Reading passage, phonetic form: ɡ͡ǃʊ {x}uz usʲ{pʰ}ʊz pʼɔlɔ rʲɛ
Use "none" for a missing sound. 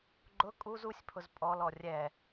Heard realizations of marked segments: kʼ, pʰ

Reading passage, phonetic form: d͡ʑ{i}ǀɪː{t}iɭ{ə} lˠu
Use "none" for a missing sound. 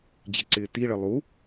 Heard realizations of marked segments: ɪ, t, ə

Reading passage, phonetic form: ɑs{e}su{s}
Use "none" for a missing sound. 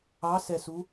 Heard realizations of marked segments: ɛ, none

